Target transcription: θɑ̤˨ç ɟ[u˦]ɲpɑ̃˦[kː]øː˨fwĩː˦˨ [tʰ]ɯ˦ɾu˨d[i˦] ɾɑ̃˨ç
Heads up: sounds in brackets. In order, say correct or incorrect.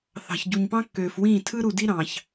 incorrect, correct, correct, correct

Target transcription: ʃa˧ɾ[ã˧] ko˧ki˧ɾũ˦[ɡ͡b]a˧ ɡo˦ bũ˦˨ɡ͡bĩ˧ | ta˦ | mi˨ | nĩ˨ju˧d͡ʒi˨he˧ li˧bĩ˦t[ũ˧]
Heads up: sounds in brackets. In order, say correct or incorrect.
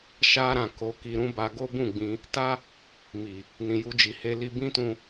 incorrect, incorrect, correct

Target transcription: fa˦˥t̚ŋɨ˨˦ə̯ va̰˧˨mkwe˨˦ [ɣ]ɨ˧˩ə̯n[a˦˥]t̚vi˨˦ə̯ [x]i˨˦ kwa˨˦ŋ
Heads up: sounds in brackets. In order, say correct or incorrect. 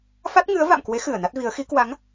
incorrect, correct, correct

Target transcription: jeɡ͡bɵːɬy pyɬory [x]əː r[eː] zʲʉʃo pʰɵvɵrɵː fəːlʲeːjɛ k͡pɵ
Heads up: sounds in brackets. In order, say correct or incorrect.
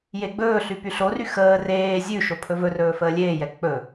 correct, correct

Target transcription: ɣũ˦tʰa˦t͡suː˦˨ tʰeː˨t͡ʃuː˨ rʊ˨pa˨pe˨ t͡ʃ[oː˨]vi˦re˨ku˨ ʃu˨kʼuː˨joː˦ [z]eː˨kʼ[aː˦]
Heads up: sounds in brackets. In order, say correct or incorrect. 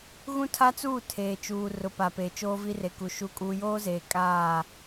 incorrect, correct, incorrect

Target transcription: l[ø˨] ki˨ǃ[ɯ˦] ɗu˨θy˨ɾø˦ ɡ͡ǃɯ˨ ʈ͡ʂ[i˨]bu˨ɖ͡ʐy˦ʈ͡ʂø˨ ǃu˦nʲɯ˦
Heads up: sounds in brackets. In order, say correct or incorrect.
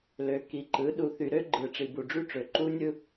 correct, incorrect, correct

